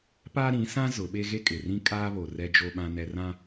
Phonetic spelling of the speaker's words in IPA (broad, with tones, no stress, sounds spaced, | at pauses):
p aː˦ ɾ ĩ˨˦ s ã˦ z ʊ˨˦ ɓ e˦ ɣ e˦ kʼ ɪ˨ r ĩ˦ kʼ aː˦ β o˨ r ɛ˦ d͡ʒ o˦ ɓ ã˦ n ɛ˦ r ã˦